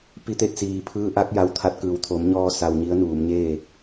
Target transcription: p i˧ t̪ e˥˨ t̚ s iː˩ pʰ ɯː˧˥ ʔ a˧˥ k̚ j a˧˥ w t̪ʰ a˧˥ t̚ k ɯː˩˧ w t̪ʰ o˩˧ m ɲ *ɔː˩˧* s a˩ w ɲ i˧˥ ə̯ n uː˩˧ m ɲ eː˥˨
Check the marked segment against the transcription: incorrect: ɔː˧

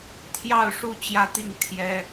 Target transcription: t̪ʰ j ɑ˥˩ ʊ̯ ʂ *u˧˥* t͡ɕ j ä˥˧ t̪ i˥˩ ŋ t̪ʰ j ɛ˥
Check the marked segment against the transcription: incorrect: u˥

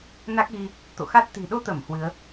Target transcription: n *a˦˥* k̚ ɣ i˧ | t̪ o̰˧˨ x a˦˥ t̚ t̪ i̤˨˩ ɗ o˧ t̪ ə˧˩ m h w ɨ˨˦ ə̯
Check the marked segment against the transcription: correct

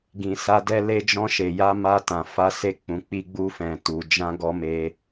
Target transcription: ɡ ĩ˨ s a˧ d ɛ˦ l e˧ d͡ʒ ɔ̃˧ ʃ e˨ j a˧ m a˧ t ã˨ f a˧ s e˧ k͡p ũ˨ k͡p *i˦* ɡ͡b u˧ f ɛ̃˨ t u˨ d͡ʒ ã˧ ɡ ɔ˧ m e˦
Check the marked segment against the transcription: incorrect: i˧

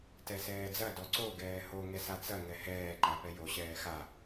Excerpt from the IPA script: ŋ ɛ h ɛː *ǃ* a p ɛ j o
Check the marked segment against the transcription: correct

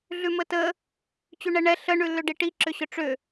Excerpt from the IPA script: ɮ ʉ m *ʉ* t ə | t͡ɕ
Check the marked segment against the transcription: incorrect: ə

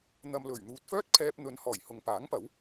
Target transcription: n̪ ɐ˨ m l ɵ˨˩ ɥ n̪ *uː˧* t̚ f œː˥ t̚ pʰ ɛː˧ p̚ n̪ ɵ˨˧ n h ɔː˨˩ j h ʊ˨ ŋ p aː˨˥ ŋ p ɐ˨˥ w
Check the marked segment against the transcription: incorrect: uː˨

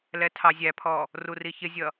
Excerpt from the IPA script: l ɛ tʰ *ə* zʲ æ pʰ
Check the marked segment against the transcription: incorrect: ɑ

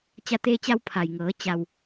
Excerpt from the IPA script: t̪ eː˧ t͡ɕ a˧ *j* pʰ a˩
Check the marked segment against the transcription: incorrect: w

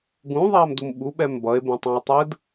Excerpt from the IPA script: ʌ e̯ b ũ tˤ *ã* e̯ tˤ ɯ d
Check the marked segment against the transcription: correct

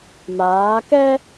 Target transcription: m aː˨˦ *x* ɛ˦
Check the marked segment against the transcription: incorrect: k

